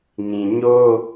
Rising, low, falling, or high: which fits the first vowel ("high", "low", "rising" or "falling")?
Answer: low